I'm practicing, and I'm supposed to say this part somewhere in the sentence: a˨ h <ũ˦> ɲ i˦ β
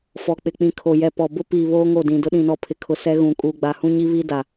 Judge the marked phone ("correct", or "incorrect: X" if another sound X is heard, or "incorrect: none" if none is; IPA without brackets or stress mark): correct